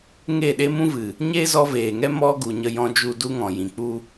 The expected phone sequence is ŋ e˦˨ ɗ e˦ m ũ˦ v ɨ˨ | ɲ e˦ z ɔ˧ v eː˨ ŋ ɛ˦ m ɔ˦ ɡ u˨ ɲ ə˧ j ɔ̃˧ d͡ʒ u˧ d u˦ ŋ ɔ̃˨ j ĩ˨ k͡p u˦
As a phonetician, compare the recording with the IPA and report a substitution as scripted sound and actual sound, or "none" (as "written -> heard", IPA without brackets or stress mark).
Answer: none